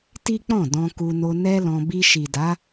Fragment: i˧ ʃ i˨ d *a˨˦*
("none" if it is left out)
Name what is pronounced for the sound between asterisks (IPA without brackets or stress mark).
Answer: a˨˦